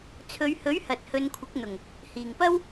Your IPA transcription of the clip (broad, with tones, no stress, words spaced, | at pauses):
t͡sʰɵ˨˧ɥhɵ˨˥ɥ hɐ˨t̚hɵ˨˧nkʷʰɪ˨˥k̚n̪ʊ˨˩ŋ | hiː˨˩ŋpɐ˥w